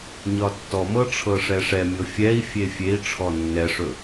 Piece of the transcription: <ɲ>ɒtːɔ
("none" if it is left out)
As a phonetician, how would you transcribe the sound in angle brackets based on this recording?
ɲ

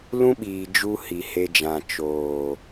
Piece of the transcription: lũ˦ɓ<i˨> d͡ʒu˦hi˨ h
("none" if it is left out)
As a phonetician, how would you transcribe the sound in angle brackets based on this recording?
iː˨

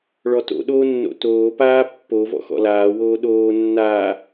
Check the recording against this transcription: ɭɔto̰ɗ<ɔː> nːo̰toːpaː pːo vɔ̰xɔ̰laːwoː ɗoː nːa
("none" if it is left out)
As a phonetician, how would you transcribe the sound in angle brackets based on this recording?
oː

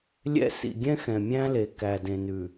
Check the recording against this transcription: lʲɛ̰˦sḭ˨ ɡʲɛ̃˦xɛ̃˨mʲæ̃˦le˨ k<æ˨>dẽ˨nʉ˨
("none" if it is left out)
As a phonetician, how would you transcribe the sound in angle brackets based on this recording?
æ˨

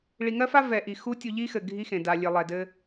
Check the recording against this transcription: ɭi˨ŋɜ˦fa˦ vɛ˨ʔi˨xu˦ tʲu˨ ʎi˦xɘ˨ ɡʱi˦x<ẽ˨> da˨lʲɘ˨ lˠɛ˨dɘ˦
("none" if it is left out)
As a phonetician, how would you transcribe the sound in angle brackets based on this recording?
ẽ˨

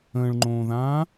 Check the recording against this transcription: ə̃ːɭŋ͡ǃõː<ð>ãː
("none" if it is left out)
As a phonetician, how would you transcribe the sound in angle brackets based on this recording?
ð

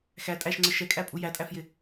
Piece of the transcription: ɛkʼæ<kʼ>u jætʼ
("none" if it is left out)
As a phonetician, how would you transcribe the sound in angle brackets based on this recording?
pʼ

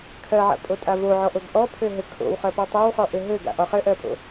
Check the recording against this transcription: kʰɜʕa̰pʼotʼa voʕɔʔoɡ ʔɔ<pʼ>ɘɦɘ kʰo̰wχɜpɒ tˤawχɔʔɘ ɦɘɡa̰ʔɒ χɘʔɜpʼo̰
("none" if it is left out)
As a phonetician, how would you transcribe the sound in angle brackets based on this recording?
pʰ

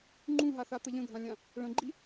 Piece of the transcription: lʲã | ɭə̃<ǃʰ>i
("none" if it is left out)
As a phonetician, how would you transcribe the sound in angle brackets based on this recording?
ɡ͡ǃ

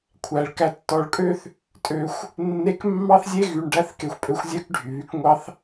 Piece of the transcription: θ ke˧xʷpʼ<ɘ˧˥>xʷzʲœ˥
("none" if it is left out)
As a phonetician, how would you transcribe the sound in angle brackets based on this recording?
ø˧˥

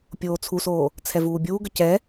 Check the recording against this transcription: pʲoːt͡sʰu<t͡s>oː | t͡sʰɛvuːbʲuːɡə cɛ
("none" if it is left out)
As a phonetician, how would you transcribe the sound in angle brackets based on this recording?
s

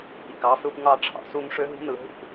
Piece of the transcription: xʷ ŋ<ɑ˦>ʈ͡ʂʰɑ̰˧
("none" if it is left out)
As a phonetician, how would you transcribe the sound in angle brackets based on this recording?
ɑ˦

